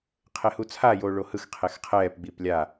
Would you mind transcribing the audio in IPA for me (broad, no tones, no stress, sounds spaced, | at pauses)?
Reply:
qʰ e h u t͡sʰ a j oː ɭ o h ɯ x qʰ e x qʰ ɛː p ɡ͡b iː p lʲ a